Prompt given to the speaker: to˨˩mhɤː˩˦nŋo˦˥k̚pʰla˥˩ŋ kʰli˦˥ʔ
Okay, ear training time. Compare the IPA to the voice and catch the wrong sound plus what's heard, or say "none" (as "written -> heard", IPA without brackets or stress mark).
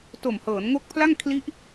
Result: none